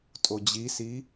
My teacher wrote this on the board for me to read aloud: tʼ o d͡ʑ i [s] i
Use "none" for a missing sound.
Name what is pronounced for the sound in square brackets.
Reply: s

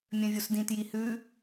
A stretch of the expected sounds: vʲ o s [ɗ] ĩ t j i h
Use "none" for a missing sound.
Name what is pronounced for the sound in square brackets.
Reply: d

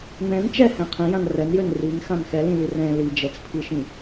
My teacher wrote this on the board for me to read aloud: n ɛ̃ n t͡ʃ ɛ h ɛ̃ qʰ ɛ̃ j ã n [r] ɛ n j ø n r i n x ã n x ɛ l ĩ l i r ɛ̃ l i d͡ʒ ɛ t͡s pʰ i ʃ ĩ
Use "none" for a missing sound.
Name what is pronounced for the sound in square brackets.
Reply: r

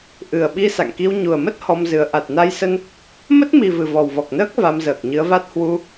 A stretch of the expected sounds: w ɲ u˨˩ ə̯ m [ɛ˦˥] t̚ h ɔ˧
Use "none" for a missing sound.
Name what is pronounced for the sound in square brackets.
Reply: ə˦˥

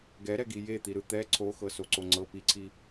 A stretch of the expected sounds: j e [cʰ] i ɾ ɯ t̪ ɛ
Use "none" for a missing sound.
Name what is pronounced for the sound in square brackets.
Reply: t̪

